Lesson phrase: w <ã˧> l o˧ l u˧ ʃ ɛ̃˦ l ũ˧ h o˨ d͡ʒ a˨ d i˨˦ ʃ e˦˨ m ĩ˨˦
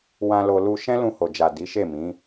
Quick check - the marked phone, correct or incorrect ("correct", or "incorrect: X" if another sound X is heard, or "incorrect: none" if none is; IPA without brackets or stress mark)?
correct